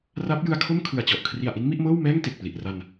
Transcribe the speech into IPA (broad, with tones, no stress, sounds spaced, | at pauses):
r a˦˥ p̚ j ɯ˧ a̯ kʰ o˥˩ m kʰ ɯ˨˩ a̯ t͡ɕ ɔ˨˩ ʔ kʰ r i˨˩ a̯ ʔ i˦˥ n m i˥˩ ʔ m ɤː˥˩ w m ɛː˥˩ ŋ t e˨˩ k̚ p l i˨˩ ʔ r a˧ n